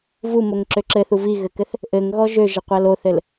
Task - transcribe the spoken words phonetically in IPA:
vumoŋǁø ǁɘθu viɣɘkɘθ | ʔɘŋɣɔ ʒøʒəqʷæl oθɘl

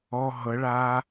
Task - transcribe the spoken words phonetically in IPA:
ɔ ɦɤɭa

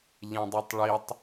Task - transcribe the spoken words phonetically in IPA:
ʎɛ̃dˤetˤɭitˤ

